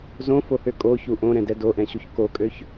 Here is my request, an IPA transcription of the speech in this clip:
z õ f o h ø kʼ o ç u ʔ õ ɾ ɛ̃ d ɛ d o ʔ ɛ̃ ɕ u ç k o kʼ ø ç

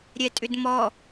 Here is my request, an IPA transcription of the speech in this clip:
ɾʲ ɛ tʼ ʏ d m ɔ

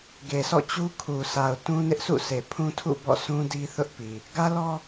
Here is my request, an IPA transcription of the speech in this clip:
ɡ e˨ sʰ ɔ̰˦˨ t͡ɕ u˦ kʰ u˨ sʰ a˨ ʊ̯ t ũ˦ n ɪ˦ ʔ sʰ ṵ˦˨ s e˨ pʰ ũ˦ tʰ ṵ˦˨ b ɔ̰˦˨ sʰ ũ˦ d i˦ θ ʊ˦ ʔ p i˨ | ɡ ä˦ l ɔ˦

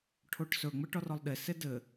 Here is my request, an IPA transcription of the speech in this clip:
ʈʰ o ʈ s ɵ ŋ͡m ɘ ʈ ɔ r ɔ lˠ ɗ e s e d ɘ

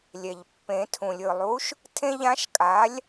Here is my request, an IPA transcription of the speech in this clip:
lʲ ɛ˩ ʎ pː ẽ˨˩˦ tʰ ũ˩ lʲ ɯ˧˩ lˠ u˨˥ ʃ | tʰ ẽ˦ ʎ ã˨˥ ʃ kʼ a˨˥ lʲ

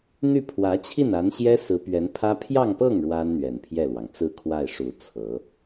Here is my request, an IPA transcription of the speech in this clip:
n̪ y˥˩ pʰ w ä˧˥ t͡ɕʰ i˥˩ n a˧˥ n ɕ j ɛ˥ s ɹ̩˧˥ p ɥ ɛ˧˥ n pʰ ä˥ pʰ j ɑ˥˧ ŋ p ɤ˥˩ ŋ ɻ w a˥ n n̪ ɥ ɛ˨˩ n pʰ j ɛ˥˩ l w ɑ˩ ŋ t͡s ɹ̩˥˧ kʰ w a˥˩ ɪ̯ ʂ u˨˩ t͡sʰ ɤ˧˥

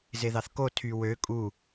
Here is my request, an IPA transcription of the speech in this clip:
z e ð ɑ θ k o tʰ y w ø kʼ u

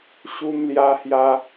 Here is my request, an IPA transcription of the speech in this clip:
ɕ u˧ m l j a˧ h j a˧

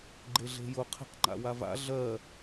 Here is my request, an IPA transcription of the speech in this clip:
ɡ͡ǃ e ɮ e̤ j ʊ qʰ e̤ q ŋ͡ǃ a̰ w a v a̰ ɮ ɜ

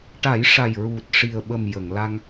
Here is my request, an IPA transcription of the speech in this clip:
ʈ a˨˩˦ j ʂ a˨˩ j ɹ u˨˩ t̚ ʂ i˨˩ ə̯ ɓ ə˨˩ m j ə˨˩˨ ŋ l a˧ ŋ

